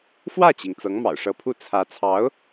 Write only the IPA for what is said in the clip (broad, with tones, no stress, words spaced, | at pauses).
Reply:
fwä˥˩t͡ɕi˩ŋ t͡sɤ˧˥ŋmɑ̰˨˩ʊ̯ʂɤ˧˥pʰu˥˩ t͡sʰä˧˥ t͡sʰɑ˧˥ʊ̯